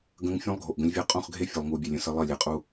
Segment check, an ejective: present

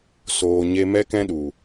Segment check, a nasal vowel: present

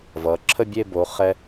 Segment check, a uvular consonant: present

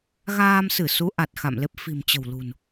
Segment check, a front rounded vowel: absent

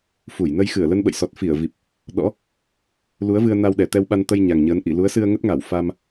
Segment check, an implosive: present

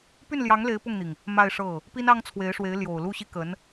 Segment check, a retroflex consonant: present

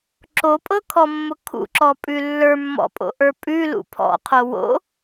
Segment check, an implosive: absent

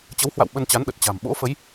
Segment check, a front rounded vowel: absent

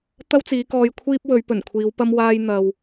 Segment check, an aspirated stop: present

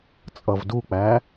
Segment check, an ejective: present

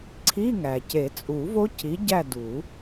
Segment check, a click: present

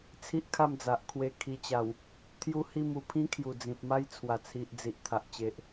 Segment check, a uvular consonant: absent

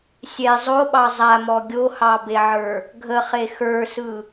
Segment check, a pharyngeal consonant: present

